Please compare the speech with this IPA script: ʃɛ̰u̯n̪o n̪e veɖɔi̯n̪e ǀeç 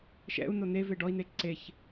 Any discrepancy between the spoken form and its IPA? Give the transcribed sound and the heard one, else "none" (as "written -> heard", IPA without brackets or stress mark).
none